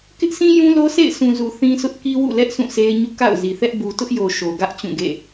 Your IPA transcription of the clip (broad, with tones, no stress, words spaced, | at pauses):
kɪ˦ʔsĩ˦ jũ˦lo˦sḛ˦˨ɪ̯ sʰũ˨zu˨ θĩ˦sʰʊ˦ʔ ki˦wṵ˦˨lɛ˦ʔ sʰũ˦˨se˦ɪ̯ɲṵ˦˨ ka̰˦˨ʊ̯zi˨θɛ˦ʔ bu˨tʊ˦ʔjo˨ ʃo˨ɡä˦ʔ t͡ɕũ˦˨ɡḛ˦˨